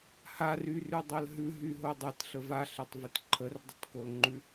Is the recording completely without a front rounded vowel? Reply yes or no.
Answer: no